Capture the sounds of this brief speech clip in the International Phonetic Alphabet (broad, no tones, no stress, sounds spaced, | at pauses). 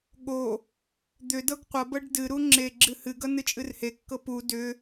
ɠ o | d̪ ʏ d ɤ ɡ qʷ ʌ b ɤ ɖ d ɨ ɾ u ŋ͡ǁ e ɡ͡ǁ ɨ h ɨ ɡ ʌ n ɨ t͡ʃʼ ɨ r h e kː ɤ p u d ʏ